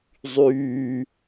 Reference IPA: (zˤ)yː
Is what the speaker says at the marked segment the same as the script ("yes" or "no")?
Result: yes